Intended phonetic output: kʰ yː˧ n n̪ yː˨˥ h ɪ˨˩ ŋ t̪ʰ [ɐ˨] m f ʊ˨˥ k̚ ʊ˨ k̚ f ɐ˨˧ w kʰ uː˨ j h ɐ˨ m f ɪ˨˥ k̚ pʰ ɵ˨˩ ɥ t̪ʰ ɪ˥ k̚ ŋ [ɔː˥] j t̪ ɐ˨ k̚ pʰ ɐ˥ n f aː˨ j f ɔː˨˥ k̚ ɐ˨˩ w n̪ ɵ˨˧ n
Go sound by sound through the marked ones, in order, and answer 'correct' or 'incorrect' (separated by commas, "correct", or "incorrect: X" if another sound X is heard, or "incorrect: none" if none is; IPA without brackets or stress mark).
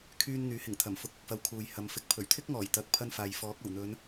incorrect: ɐ˨˩, incorrect: ɔː˨˩